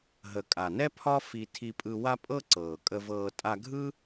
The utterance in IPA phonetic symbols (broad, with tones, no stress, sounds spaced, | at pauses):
ɦ ə˨ kʼ a˨ n ɛ˦ pʰ ɒ˦ f i˧ tʰ i˧ pʼ ɯ˧ w a˦ pʼ ɤ˦ ǀ ɤː˨ kʼ ə˧ v ɤː˧ tʼ a˧ ɡʱ ɯ˦